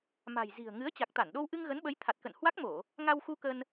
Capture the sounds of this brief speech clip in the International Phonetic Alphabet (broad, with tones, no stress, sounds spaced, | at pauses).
m a̤˨˩ j z i̤˨˩ ə̯ ŋ ɨ˨˦ ə̯ t͡ɕ a˨˩ k̚ t̪ a˧˩ n ɗ o˧ w ʔ ɨ˧ ŋ ɣ ə˨˦ n ɓ ə˨˦ j t̪ʰ a˨˩ t̚ k ə̰˧˨ n h w a˦˥ k̚ m o˧˩˨ | ŋ a˧ w x u˧ k ə˧ n